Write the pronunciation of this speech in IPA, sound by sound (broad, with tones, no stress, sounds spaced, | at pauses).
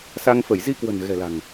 s a˧ ŋ f ə˧˩ j z i˧ k w ə̤˨˩ n ɣ ɛ̤˨˩ l a̤˨˩ ŋ